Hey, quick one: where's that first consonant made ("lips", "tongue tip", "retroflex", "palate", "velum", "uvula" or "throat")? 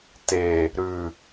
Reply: tongue tip